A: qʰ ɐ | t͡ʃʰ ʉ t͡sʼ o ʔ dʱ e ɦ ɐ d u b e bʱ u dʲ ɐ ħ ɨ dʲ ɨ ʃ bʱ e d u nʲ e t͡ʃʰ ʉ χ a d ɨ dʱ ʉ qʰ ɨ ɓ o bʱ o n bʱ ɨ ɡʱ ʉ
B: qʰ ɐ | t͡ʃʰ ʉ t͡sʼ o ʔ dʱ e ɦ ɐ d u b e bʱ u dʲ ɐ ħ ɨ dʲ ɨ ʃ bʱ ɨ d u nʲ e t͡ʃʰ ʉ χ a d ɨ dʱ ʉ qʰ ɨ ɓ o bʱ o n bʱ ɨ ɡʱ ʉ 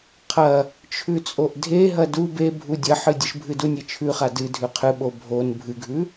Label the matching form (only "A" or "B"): B